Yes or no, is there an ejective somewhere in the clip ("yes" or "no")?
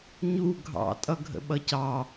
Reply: yes